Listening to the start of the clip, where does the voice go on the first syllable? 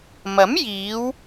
rising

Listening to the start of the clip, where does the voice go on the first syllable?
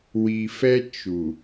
low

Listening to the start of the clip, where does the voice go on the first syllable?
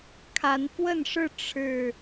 rising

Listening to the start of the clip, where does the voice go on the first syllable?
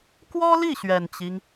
high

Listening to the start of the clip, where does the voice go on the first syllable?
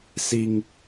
high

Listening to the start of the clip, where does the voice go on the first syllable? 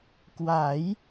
rising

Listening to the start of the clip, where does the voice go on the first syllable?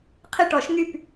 falling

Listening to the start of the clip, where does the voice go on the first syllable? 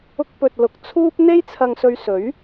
high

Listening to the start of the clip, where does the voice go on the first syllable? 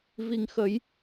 low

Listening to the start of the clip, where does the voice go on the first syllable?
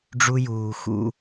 high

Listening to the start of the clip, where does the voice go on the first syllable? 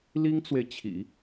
high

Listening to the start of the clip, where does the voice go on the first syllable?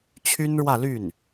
high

